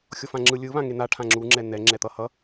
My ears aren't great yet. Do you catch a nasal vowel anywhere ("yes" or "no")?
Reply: yes